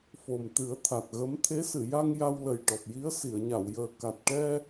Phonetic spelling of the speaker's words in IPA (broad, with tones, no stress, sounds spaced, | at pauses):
f o˨˩ m t̪ ɨ˨˩˦ ə̯ t̪ʰ a˨˩ t̚ ɣ ə˧˥ m t̪ʰ e˧˥ s ɨ˨˩˨ j a˧ ŋ j a˧ w l ə˨˩ j ʈ ɔ˨˩ p̚ j i˧˥ ə̯ s i˨˩˨ ə̯ ɲ a˨˩˨ w j əː˨˩ k a˨˩ t̚ ʈ ɛ˧